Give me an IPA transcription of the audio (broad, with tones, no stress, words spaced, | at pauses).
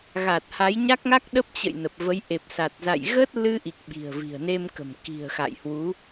ɣa˨˩t̚ ha˨˦j ɲa˦˥k̚ŋa˦˥k̚ɗə˦˥p̚ t͡ɕə̰˧˨j nə˨˩p̚və˨˦j ʔe˨˩p̚sa˨˩t̚za̰˧˨j ɣə˦˥t̚ lɨ˧ʔi˨˩k̚ ɓi̤˨˩ə̯vi̤˨˩ə̯ne˧mkə̤˨˩m ki̤˨˩ə̯xa̰˧˨jhwu˨˦